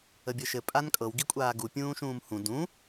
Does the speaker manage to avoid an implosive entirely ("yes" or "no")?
yes